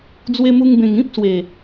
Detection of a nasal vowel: present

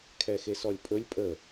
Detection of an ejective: present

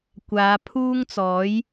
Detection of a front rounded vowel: absent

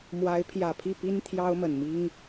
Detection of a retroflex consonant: absent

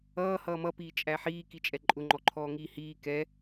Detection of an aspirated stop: present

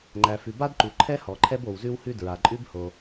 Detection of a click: present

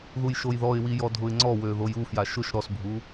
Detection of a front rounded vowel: present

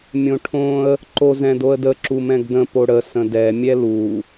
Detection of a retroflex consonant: present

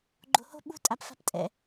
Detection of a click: present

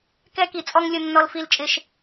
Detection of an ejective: present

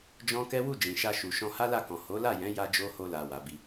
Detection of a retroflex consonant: absent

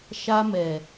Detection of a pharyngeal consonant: absent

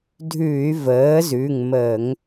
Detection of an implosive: absent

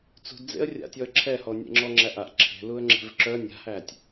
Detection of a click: present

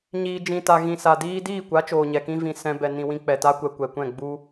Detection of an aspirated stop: absent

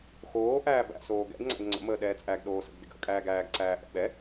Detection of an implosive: present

